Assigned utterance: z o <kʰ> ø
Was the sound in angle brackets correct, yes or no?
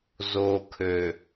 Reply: yes